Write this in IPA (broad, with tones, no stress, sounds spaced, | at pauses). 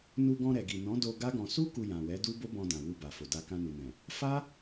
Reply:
n u˧ ɡ ɔ̃˧ ɾ ɛ˨ ɡ i˨ n ɔ̃˨˦ d o˧ ɡ a˦ ɡ ɔ̃˧ s u˦ k u˧ j ã˨ w ɛ˨˦ d u˦ b o˦ b ɔ̃˧ d ã˨ w u˧ b a˨ f o˨ d a˧ k ã˧ n u˨ n ɛ̃˨ | f a˦